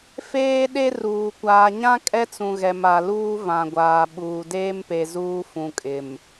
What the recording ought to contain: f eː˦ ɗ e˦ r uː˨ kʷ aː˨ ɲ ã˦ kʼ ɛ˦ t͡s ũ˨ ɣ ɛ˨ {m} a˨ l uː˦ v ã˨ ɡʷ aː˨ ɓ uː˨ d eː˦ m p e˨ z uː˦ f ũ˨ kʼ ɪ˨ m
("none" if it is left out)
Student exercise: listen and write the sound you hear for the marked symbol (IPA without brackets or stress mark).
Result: m